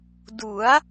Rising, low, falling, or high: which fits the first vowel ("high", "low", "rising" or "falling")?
rising